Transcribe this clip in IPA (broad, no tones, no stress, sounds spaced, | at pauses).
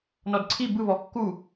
n ɔ d ǀʰ i b ɯ β ɔ kː u